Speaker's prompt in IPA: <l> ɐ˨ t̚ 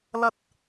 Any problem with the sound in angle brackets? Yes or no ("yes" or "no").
no